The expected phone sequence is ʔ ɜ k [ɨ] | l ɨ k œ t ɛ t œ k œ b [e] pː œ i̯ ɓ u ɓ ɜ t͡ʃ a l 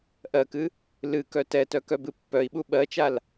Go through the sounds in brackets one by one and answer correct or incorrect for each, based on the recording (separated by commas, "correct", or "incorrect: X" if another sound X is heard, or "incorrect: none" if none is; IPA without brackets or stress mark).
correct, incorrect: ɨ